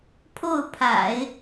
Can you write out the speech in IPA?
pʰo˥˩ʊ̯pʰa̰˨˩˦ɪ̯

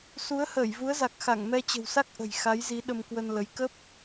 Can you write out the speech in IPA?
su˨˦ə̯ həː˧˩jvu˨˦ə̯za˨˩k̚xa˧˩ŋ mɛ˧t͡ɕə̤˨˩wsa˦˥k̚ ʔə̤˨˩j xa˨˦jzi˨˦ ɗə˧mkwə˧nlə˨˦j kə˦˥p̚

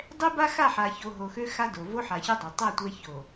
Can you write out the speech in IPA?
dˤɛ˦ ba˦xa˦˨ħa˨ço˨ ɦo˨xø˦xa˦ do˨ vo˦ħa˨çɛ˦ dˤo˨ tˤɛ˦˨ tʷɛ˦ ço˨

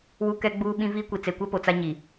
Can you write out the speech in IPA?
wu˦kɛ˦ɡ͡buː˦ɓĩ˦ viː˦kʷi˨ t͡se˨kʷɛ˦po˨ t͡sa˦ɲi˨

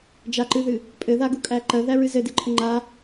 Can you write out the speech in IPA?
d͡ʒaǃɨðɨ | pʼɘðaɡukʼæ ǃɜðæɹɨ zɘdɨǃʰɘ ŋ͡ǃa

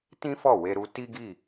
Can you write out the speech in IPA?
tĩ˦fɔ˦˨ we˧ɾu˧ ti˦ɡi˦˨

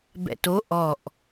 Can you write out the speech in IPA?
bɛ̰to ʔɔʔ

